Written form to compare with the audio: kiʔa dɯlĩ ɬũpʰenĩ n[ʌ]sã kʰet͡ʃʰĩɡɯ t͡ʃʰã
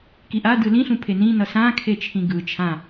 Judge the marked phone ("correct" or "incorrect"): correct